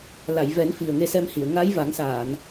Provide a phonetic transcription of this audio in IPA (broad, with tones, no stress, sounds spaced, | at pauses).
l a˨˩˨ j v ɛ˨˩˦ n f i˨˩ ə̯ ŋ e˧˥ s ɛ˧ m h i˨˩˨ ə̯ ŋ a˧˥ j v a˨˩˦ ŋ s aː˨˩˨ n